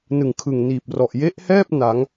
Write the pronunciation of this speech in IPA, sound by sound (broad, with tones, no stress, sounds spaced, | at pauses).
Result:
n ɯ˨˩ ŋ kʰ ɯ˨˩ ŋ n iː˨˩ p̚ r ɔ˨˩ ʔ j e˦˥ ʔ h ɛː˥˩ p̚ n a˩˦ ŋ